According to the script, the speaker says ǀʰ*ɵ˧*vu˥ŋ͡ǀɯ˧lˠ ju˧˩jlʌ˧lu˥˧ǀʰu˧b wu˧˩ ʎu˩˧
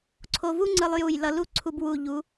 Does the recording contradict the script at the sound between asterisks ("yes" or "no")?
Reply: yes